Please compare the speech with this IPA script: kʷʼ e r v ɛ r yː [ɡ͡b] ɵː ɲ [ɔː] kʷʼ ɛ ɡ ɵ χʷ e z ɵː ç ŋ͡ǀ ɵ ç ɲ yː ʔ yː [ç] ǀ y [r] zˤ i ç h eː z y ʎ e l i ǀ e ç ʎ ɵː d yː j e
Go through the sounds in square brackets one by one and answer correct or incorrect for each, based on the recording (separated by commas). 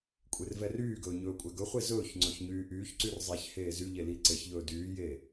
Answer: incorrect, incorrect, correct, correct